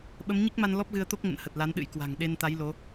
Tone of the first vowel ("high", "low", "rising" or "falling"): rising